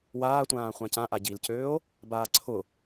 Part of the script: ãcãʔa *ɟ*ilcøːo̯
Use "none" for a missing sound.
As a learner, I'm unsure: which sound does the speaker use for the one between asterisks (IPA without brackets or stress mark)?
ɟ